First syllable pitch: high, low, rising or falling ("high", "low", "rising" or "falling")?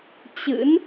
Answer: rising